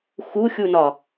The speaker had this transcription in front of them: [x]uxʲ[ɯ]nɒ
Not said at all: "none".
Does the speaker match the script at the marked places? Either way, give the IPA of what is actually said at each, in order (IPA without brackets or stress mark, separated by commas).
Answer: x, u